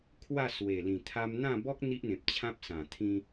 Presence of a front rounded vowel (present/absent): absent